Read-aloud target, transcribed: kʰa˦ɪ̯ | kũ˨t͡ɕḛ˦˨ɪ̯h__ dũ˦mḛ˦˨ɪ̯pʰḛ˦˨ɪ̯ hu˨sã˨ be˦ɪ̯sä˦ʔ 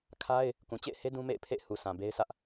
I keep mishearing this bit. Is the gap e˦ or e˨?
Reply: e˦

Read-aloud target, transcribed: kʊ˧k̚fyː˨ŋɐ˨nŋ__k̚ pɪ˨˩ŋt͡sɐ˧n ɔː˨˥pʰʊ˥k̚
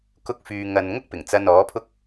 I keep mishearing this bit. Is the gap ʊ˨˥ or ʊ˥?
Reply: ʊ˥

